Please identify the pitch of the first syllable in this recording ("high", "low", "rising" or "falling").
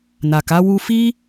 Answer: low